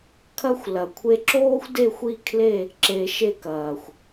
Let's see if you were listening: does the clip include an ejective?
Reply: no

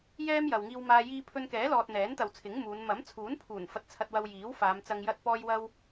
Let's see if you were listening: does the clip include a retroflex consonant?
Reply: no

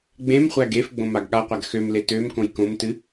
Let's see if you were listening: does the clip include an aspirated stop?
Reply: no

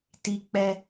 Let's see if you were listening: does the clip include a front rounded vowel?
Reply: no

